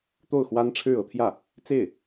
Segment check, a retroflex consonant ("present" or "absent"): present